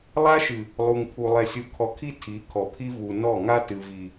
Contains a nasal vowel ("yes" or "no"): no